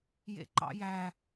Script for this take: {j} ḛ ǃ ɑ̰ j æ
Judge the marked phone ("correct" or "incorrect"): correct